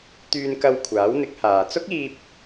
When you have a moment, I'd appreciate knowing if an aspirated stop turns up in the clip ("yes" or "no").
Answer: yes